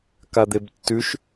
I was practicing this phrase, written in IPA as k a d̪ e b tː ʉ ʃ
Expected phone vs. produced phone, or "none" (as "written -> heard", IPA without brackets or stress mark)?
none